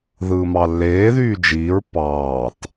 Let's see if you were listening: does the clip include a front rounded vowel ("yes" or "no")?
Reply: yes